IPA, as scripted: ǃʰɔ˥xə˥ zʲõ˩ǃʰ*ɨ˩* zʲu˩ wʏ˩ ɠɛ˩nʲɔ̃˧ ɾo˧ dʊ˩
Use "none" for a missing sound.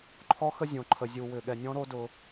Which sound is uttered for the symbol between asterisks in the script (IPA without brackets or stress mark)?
ə˩